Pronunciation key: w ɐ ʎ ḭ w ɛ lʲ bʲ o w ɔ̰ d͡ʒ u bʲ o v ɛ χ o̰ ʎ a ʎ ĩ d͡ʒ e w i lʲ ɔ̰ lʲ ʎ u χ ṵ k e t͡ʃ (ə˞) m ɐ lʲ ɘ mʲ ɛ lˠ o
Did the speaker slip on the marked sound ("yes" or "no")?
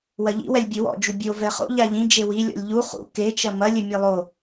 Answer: yes